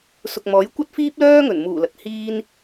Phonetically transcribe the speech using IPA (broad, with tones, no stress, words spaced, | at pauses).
sʊ˨k̚mɔː˨˥j kʷɐ˥t̚fiː˥p̚lœː˥ŋɵ˨˩n muː˨˩lɐ˨˥t̚hiː˥n